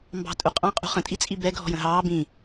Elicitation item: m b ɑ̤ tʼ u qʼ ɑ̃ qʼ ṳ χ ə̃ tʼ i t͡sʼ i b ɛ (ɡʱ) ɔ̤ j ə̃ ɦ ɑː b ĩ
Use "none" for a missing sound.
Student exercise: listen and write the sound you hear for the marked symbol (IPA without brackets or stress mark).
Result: ɡʱ